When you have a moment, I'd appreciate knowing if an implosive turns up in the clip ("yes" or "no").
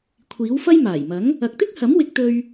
no